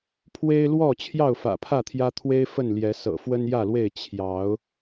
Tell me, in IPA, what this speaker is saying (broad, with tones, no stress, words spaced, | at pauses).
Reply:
pʰwe˦ɪ̯lwɔ˥˨ t͡ɕʰjɑ˥˨ʊ̯fä̰˨˩pʰä˥˨t̪ʰjä˦ t̪ʰwe˦ɪ̯ fə˥˨nljɛ˨˦ sɤ̰˨˩fwə˦njä˥˨lwe˥˨ɪ̯ t͡ɕʰjɑ˨˦ʊ̯